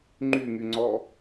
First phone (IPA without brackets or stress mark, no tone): ŋ͡ǃ